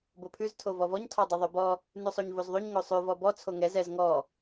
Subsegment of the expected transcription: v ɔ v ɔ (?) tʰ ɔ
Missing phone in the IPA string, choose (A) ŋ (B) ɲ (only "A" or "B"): B